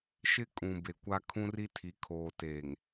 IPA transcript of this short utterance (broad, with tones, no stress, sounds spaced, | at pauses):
ʃ ɪ˦ kʼ ũ˨ b e˨ kʷ a˦ kʰ ũ˦ r i˦ tʰ i˨ kʰ oː˨ t eː˨ ŋ